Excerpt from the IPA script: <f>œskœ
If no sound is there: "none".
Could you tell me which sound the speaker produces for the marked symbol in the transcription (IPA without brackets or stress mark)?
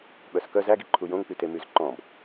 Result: ɓ